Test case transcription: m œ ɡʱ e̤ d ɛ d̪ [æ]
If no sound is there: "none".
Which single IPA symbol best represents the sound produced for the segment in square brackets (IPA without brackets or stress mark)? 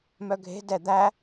æ